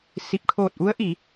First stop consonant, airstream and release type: plain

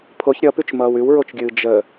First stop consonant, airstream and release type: aspirated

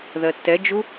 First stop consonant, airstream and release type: plain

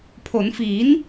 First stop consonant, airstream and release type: aspirated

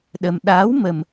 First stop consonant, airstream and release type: implosive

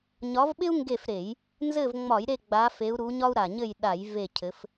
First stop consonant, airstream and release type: implosive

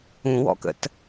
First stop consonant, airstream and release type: plain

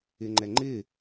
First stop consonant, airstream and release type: click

